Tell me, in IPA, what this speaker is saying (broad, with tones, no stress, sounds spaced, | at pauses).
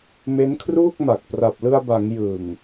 m e˦˥ n kʰ r uː˥˩ k̚ m a˨˩ k̚ p r a˨˩ p̚ l ɯ˧ a̯ b a˩˦ ŋ j ɯ˨˩ ŋ